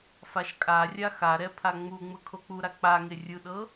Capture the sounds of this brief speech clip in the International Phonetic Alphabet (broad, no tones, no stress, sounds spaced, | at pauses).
f a ʃ kʼ a rʲ a x a ɾ ɛ pʰ a ŋ͡m u ŋ͡m ɯ kʰ o k͡p u ɾ a k͡p a ŋ e rʲ ɯ ɗ ɤ